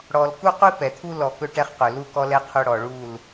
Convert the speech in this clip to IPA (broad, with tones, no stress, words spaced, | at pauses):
ɽɔ˨l ku˦qʷi˦ pɛ˨t̪ʰu˦ lɔ˨ kɵ˦ʈɛ˦χqɵ˨ lu˦kɔ˦lɛ˦ qʰɵ˦ɽɔ˨ɭu˦˨l